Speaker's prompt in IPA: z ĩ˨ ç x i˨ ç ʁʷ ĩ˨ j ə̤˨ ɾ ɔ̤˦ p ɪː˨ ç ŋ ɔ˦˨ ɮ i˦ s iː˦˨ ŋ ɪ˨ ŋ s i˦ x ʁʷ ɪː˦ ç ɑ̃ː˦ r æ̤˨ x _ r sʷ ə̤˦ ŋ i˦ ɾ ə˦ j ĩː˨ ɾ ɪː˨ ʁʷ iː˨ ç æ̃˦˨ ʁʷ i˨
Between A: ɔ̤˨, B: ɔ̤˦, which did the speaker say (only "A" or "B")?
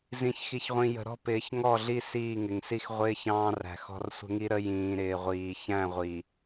B